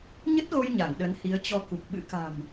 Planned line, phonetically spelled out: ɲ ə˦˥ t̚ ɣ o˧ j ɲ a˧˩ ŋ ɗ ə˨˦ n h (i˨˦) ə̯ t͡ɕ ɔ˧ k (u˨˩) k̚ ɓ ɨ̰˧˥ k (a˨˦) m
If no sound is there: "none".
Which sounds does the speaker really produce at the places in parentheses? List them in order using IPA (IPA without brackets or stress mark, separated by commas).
i˨˦, u˨˩, a̤˨˩